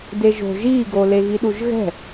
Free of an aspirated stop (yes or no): yes